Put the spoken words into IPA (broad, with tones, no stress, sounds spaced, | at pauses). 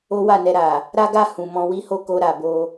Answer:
o˦ w a˦˨ n ɛ˨ ɾ a˨ | ɾ a˦ ɡ a˦˨ h ũ˨ m ɔ̃˧ w i˦ h o˦˨ k o˧ ɾ a˨ b o˧